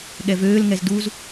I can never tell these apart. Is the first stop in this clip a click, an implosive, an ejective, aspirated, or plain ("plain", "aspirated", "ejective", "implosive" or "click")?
implosive